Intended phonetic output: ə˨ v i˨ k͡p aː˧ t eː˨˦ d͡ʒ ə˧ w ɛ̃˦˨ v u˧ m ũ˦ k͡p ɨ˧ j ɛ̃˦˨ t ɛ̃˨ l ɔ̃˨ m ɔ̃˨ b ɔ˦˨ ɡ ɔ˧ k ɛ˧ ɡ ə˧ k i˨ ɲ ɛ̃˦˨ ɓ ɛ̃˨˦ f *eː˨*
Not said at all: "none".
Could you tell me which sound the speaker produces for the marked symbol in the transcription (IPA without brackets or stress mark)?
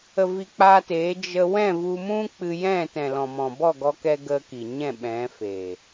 eː˨